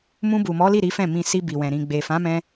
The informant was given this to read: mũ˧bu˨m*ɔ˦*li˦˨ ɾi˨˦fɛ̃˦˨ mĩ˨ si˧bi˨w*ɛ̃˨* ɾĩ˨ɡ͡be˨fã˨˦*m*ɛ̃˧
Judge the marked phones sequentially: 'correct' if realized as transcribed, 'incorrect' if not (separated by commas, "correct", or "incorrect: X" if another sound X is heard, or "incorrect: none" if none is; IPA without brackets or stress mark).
incorrect: ɔ˨˦, correct, correct